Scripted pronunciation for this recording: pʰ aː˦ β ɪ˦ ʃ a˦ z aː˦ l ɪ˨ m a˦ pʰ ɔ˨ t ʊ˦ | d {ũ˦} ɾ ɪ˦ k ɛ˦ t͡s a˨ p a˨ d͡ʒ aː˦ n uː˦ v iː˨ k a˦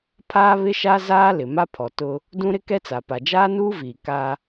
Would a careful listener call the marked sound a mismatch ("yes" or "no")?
no